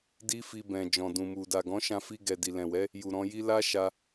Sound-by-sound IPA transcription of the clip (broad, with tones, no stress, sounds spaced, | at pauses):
d i˦ f i˧ b ɛ̃˨ d͡ʒ ɔ̃˨ d ũ˨ m u˨ d a˨ ɡ ɔ̃˨˦ ʃ ã˧ f i˧ ɡ ɛ˨ d i˨ l ɛ̃˨ w ɛ˨˦ | j u˨ ɾ ɔ̃˧ j i˦ l a˦ ʃ a˧